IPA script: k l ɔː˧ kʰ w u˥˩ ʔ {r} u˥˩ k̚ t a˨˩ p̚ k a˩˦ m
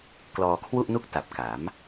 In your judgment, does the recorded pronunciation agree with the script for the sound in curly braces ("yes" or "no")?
no